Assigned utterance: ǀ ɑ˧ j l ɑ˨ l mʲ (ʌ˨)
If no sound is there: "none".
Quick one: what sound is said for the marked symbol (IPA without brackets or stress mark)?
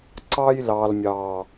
ɑ˨